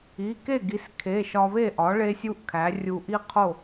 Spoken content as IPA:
i˩˧˩ke˥˩ɡi˩˥skʰe˩˧˩ ʃɒ˧βe˥˩ʔɒ˩˥ ɭe˥sʲu˥ʔkʰæ˩˥ rʲu˧ʔi˥qʰo˥˩

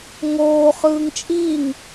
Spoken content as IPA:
ŋoː χɯːŋt͡ʃʼiŋ

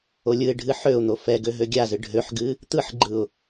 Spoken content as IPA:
olʲɯɪ̯ɖʱɨ ħøʊ̯n̪o fɛɡø ɦøɡʲazɨ ɖʱøħɡɨ | t̪ɯħɡ͡ǃɯʊ̯

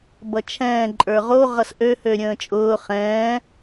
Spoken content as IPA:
bʌt͡ʃʰɛ̃ː ǃʼə˞ʁo ʁʌsʔø høɾʲə̃ːt͡ʃʼʊː χɛ̃ː

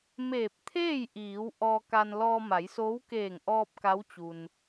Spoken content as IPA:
meː˧˩p̚t̪ʰeː˥˨jʔiː˩˧w ʔɔː˧ka˧n lɔː˧ma˩˧jsoː˧˥w keː˧˩ŋʔɔː˧p̚ ka˧˥wt͡ɕu˩n

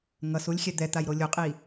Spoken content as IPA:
ŋʌsulʲxʲɛ d̪ɛt̪ajɾo lʲuqʼi

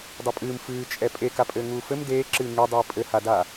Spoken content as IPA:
dˤupʼɨːm fɨːt͡ʃʼɛ pʼekapʼɘː ŋuːfɘm deːǁɨː ŋedˤɨː pʼɘhada

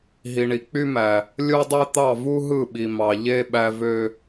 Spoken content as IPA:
ɦi˨ɳi˨ k͡py˦mæ˨ | lʲo˦dˤe˦t̪ɑ˦˨ vu˦ɦɯ˦˨ɓi˨ mɑ˨ʎe˦ ɓæ˦vø˦

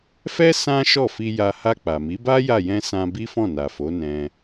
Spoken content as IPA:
fɛ˦ sã˦ ʃɔ˦˨fi˧ja˧ ha˧k͡pa˨mi˨˦ba˦ ja˦˨jɛ̃˧ sã˧bi˦fɔ̃˦˨ na˨fo˨˦nɛ̃˧

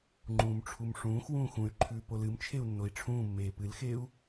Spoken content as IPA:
ŋ͡ǃũːmʈ͡ʂʰumʂũːx wũːxũy̯ǃʰʉː polɨmt͡ʃʰeu̯ nːoi̯ʈ͡ʂʰũːmːeː pɨlxeːu̯

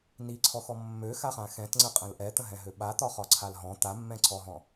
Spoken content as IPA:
niǀʰɔxɔ mːøxaχã xɛ̃tŋ͡ǀəqʼə̃l ʔɛt̪ə̃ɦɛ̃ɦø ɓat̪ɒχɒǀʰal ɦɔ̃ t̪amːɛ̃ǀʰɔɦɔ̃

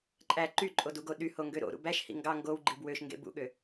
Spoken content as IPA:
ǃʼæ ǃyǃʼoduɡo ɗyhoŋɡø ɾo̰ɾṵ bæʃhḭ ŋɡɑ ŋɡowɡ͡ǃib wøʃŋɡḛ bṵɠø

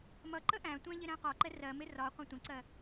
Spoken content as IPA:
mʌ ǃəʔæ̃tʷæ̃ ʎɪɾæ̃qɒǃɛ rɜmɪ rɒ qʷɛ̃tʷə̃ǀɜ

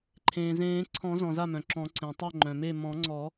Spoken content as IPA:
ǃʰẽː˩zẽː˨˩˦ǀʰɔ̃˨˩˦zɔ̃˩ za˥˩mœ̃˩ǁɔ̃˨˩˦ ǀẽ˩tˤœ˥˩ŋ͡ǃœ̃˩me˥˩ mɔ̃˨˩˦ŋ͡ǀɔ˨˩˦

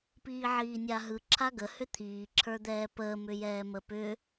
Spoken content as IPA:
piːʕiːnʲaɦɯ ǁʰaɡə hʏt̪ʰiː ǁʰə˞d̪ɛːpəː mʏjɛːməpʏ

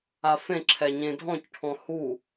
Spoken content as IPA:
afẽ ǁʰɛɲẽdʱɔ̃c ʈʰɔ̃hu

